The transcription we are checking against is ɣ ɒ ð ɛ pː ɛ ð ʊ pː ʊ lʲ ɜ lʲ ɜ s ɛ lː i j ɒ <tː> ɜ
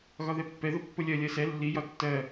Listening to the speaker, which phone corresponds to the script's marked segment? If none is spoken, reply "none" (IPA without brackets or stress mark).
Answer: tː